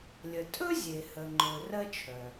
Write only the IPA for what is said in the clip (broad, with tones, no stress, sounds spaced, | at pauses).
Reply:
lʲ ə˩ tʼ ɵ˥ zʲ e˩ h ə˩ ŋ͡ǃ ɵ˩ r ɜ˥ t͡ʃʰ œ˩